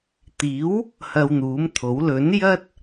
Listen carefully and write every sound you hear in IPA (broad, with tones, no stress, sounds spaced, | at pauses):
t̪ iː˨˥ w | h ɐ˧ w n̪ uː˨˥ m t̪ʰ o˨˥ w l ɵ˨˥ n j ɐ˥ t̚